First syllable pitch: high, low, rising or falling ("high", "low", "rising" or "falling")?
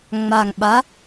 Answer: low